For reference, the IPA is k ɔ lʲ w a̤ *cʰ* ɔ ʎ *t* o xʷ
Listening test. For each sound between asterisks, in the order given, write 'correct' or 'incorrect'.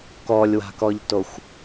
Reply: incorrect: k, correct

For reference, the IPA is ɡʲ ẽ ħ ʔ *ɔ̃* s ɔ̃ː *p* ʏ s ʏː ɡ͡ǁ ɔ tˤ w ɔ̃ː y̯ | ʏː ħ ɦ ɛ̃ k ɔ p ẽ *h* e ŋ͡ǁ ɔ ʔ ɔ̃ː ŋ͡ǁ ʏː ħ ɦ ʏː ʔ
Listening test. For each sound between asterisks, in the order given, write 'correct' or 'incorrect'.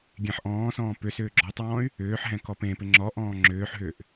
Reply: incorrect: ɔ̃ː, correct, incorrect: p

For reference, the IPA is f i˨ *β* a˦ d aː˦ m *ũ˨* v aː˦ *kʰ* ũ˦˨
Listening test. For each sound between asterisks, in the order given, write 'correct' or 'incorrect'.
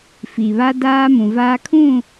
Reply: correct, correct, correct

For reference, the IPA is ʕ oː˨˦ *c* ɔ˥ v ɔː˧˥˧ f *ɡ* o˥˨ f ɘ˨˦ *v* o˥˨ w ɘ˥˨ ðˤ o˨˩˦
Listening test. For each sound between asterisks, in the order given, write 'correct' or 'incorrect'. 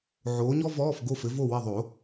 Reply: incorrect: ɲ, correct, correct

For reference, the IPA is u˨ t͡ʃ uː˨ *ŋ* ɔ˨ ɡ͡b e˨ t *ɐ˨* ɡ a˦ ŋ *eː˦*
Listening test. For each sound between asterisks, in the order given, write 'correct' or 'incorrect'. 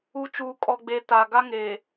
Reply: incorrect: kʼ, incorrect: a˨, incorrect: eː˨

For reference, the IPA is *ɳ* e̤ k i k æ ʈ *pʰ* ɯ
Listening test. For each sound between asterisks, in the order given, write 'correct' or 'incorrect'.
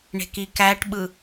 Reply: correct, incorrect: ɓ

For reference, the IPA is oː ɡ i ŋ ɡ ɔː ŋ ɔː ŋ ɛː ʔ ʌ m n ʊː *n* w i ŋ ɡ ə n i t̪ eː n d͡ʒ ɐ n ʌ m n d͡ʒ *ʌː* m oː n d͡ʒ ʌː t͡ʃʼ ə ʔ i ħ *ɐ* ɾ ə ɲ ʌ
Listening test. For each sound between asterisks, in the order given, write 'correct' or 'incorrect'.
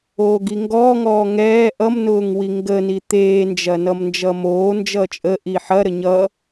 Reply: incorrect: ŋ, correct, correct

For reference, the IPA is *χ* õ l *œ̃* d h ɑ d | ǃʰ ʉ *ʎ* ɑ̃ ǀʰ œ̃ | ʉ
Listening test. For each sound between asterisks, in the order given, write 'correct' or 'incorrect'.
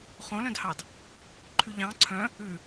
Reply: correct, correct, correct

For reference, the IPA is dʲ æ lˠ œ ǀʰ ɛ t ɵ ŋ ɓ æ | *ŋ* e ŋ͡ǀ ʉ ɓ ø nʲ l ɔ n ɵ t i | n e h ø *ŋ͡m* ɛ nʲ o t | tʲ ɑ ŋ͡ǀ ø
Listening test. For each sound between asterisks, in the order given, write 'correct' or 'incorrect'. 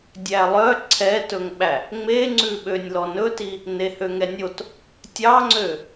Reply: incorrect: ŋ͡m, incorrect: ŋ

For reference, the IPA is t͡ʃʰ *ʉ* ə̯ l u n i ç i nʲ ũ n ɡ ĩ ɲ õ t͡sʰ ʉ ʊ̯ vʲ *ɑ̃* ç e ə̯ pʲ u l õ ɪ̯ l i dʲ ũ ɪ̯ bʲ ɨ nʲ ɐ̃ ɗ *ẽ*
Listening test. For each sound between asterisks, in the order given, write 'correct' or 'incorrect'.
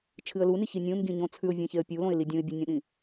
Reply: incorrect: ɨ, incorrect: ã, incorrect: ĩ

